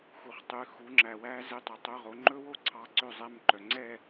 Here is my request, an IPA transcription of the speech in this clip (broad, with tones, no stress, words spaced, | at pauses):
xu˨χtˤʉ˨˦ xu˨˦ŋ͡ǁæ˨wæ˦˥ ze˧˥˧tˤɵ˨˦tˤɵ˧˥˧ʁo˨˦ ŋ͡ǃɵ˦˥wo˥˧ ǀʰɑ˦˥ǀø˥˧zˤɛ˧˥˧mǃœ˨ ŋ͡ǀɛ˥˧